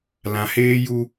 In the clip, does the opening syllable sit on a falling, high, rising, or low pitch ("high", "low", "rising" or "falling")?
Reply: low